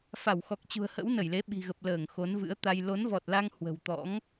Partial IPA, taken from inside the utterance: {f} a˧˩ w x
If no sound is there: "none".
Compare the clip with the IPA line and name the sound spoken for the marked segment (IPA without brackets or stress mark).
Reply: f